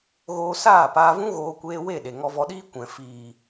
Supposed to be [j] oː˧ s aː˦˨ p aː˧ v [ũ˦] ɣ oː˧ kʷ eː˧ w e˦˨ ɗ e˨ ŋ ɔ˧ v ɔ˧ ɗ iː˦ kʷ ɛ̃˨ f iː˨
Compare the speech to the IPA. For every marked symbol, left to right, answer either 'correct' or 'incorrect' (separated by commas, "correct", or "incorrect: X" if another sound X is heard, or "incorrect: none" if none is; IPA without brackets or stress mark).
incorrect: ɣ, correct